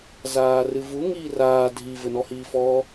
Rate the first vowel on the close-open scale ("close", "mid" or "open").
open